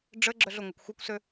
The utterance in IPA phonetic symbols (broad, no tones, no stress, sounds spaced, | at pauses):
ɖ͡ʐ ə ɡ͡ǁ œ ɮ ʊ ŋʷ ɐ kʷ xʷ œ kʷ s ø